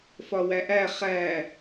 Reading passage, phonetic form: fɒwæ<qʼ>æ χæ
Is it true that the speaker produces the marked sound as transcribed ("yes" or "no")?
no